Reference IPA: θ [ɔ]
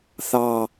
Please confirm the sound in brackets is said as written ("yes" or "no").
no